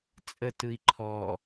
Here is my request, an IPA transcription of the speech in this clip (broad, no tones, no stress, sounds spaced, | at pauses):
t͡sʼ ə t ɯ i̯ ǃʰ ɔ